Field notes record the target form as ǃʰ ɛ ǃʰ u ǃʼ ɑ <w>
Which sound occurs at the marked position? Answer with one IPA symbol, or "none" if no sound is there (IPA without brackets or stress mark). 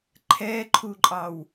w